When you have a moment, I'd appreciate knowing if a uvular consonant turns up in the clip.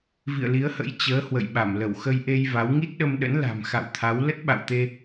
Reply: no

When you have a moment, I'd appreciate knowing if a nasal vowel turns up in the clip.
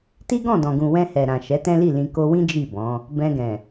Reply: yes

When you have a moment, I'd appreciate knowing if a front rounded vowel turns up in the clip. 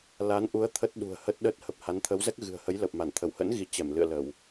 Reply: no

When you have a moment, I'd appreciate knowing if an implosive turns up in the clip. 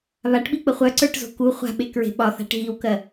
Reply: yes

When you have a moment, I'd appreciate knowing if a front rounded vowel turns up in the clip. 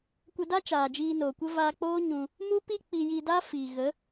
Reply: no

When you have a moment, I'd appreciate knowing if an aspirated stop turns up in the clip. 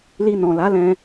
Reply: no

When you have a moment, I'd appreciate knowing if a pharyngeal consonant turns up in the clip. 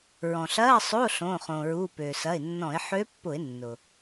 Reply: yes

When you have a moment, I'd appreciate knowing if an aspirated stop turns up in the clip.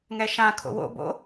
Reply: yes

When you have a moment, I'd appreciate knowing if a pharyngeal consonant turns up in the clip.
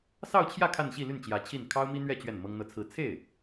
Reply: no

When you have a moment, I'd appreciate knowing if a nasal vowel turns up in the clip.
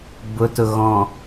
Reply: yes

